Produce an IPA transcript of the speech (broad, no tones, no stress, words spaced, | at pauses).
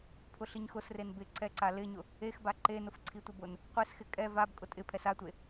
pʰʊɬiɲxʊsren bɪǀɛǀa lɪɲʊ | exba ǃenʊf ǀʰitʷɪbʊn | qʷesxɪ kʼɛ vab kʼʊtʼɪpʰɛs atʷe